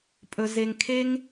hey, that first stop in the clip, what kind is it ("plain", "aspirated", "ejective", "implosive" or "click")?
ejective